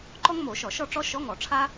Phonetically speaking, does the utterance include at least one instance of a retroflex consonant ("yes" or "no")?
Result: yes